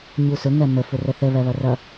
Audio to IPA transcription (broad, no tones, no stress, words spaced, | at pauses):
ɲusʊ ŋɜmə fʊrəθə βɜβʌrʌ